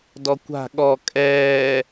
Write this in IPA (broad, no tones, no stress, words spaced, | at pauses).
dɔkʷa̤ ɠɔ kʼɛː